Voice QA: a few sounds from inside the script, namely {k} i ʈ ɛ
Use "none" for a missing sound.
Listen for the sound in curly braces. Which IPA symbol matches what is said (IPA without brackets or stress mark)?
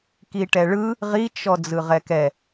k